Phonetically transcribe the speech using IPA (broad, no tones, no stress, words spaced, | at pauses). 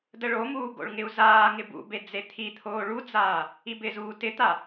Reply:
dəɭomuː ɡo̰ɭŋɪu̯zaːŋɪ bṵbe d͡zet̪ʰit̪ʰoː ɭud͡zaː | ibɪzuː tɪt̪a